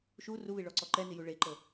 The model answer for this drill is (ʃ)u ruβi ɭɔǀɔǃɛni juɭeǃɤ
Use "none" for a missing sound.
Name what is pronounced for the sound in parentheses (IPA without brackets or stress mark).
ʃ